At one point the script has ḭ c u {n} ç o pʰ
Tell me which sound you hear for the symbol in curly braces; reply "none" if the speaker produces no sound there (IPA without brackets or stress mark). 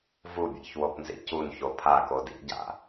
n